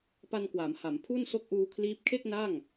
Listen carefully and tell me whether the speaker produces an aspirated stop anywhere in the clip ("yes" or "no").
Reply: yes